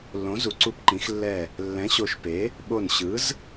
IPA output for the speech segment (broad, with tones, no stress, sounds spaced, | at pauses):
lː õ˩˥ z u˩˥ ǀ u˧˩ p ǃ ĩ˩˥ x lː ɛ˧˩ | lː ɛ̃˩˥ ɕ o˧˩ ʃ p e˩˥ | ɓ o˧˩ n ɕ ɯ˩˥ z